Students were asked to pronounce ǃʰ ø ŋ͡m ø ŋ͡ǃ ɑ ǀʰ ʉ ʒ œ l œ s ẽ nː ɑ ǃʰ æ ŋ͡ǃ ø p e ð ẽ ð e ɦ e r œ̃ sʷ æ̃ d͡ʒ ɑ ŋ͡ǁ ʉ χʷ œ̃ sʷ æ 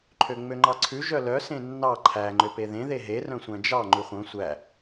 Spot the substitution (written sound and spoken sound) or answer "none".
ŋ͡ǁ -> ŋ͡ǃ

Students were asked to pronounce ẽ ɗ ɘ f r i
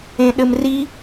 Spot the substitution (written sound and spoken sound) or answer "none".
f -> m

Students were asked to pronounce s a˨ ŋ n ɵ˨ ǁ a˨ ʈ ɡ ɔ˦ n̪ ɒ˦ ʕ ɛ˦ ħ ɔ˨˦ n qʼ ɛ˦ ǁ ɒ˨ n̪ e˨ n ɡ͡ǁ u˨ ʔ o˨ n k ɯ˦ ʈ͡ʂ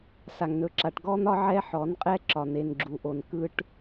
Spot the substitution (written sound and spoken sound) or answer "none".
ʈ͡ʂ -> ʈ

